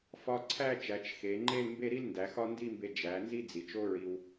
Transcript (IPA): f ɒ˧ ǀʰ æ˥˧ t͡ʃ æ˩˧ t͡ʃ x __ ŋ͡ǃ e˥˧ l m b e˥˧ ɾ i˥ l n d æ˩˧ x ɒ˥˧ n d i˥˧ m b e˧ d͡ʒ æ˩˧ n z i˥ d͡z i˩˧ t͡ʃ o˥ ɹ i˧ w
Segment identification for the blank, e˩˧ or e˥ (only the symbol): e˩˧